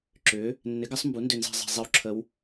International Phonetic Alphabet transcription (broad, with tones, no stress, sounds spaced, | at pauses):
ǁ ʏː˨˥ | nː ɪ˨˥ ɡ ɐ˨˥ sˤ m b u˨˥ n d ʏ˦˨ n z e̤˦˨ zˤ e̤˦˨ zˤ i˦˥ w ǁʰ ə˦˥ w